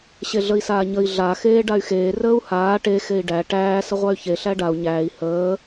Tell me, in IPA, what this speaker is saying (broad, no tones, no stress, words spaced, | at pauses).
ɕeɮəi̯saːɲəi̯ ɮa xeːɖay̯xeː rəːu̯haː ʈe xei̯ɖæ ʈæː səʁʷay̯çe ɬæɖau̯ ɲæːi̯ həː